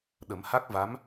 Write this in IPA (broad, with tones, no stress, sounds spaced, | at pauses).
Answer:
ɗ ə˨˩˦ m h a˦˥ k̚ v a˧˥ m